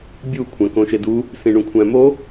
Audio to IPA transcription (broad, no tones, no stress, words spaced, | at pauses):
bʲu kʷʰæ̃kõʃedu | sĩɳũkʷʰæ̃mo